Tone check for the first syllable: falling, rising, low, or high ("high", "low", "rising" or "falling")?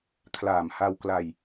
low